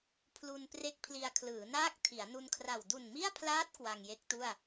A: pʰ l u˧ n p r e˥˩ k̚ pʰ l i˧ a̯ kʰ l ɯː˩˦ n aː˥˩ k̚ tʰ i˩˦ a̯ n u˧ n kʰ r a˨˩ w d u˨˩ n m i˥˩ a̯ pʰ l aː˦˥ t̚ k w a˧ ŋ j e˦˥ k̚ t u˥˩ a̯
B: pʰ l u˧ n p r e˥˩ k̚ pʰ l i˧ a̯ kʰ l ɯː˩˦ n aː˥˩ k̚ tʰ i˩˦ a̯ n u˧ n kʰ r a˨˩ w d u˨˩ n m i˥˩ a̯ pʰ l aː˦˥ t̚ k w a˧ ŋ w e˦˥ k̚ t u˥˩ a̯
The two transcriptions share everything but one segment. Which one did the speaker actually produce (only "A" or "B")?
A